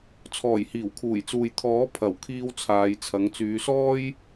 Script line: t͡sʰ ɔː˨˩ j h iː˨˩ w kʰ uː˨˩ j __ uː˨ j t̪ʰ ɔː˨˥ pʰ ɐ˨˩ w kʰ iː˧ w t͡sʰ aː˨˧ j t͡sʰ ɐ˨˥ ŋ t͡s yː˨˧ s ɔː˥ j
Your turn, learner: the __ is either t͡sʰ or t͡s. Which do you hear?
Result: t͡s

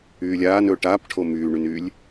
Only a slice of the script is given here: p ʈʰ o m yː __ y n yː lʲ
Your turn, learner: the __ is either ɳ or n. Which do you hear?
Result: ɳ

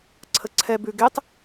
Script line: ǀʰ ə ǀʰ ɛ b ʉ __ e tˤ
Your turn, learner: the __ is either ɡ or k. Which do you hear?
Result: ɡ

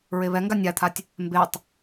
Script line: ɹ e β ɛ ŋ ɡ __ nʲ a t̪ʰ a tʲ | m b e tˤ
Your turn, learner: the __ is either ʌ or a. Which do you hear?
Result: a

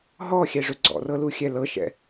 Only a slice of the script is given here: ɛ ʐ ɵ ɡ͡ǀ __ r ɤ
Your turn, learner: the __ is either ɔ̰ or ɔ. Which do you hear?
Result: ɔ̰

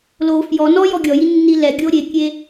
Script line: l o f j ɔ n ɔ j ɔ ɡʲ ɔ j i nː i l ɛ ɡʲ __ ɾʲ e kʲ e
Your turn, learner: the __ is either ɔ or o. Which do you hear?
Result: o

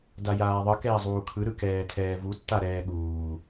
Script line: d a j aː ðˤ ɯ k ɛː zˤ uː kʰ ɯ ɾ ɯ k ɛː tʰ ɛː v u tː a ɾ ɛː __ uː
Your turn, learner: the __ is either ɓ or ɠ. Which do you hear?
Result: ɠ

